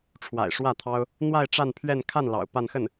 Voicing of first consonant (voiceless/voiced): voiceless